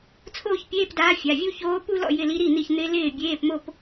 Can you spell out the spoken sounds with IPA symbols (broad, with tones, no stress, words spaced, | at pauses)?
t͡sʰoː˥˧çpʲeː˧˥˧pdaː˧˥ fʲa˩˧˩vʲu˥˧çoː˧˥ pu˥˧lɔ̰˥˩ jɪ˧˥˧li˧˥ɾi˥˩n̪i˥˩ç n̪ɪ˧˥lɪː˥˩ bʲeː˧˥˧pmo˥˧p